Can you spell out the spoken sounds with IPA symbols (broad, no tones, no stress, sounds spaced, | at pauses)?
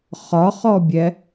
χ ɒ χ ɔ bʲ ɛ